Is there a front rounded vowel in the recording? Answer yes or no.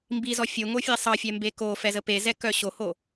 yes